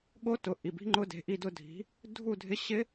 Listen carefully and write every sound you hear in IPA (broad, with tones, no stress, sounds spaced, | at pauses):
ɠ o˦˥ t ʊ˩˧˩ ʔ i˩˧˩ b i̤˦˥ ŋ͡ǃ ʊ˦˥ d e̤˩˧˩ ʔ i˥˧ d ʊ˥˧ dʱ i̤˨˥ | dʱ u˥˧ dʱ ɪ˦˥ ɕ ɪ˦˥